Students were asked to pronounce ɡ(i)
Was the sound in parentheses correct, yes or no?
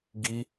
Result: yes